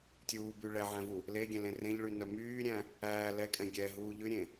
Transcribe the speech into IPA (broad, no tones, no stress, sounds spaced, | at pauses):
tʲ uː b y ɭ ɛ ʕ æ̃ v u | l e ɡʲ ɛ̃ l ẽ r ẽ ʎ ɭ y n œ m yː ɾʲ æ̃ | æː l ɛ kʼ ɛ̃ ɡʲ ɛ ɦ uː ʎ ʉ ɾʲ ẽ